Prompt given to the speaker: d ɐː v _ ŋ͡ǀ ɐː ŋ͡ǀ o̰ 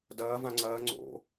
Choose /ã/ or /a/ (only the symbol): ã